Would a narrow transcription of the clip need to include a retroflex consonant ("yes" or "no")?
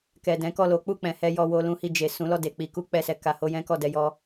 no